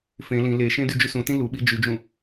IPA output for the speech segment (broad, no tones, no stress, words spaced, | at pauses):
fẽ lĩ leʃẽ dyd͡ʒysũtĩ luɓi d͡ʒyd͡ʒũ